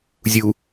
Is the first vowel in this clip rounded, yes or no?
yes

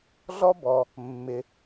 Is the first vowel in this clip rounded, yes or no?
yes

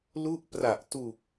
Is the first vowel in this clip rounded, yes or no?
yes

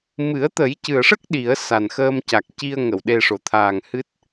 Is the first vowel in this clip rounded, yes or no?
no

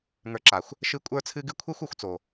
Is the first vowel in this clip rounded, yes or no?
no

